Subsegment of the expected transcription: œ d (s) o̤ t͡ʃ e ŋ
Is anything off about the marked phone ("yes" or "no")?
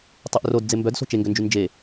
no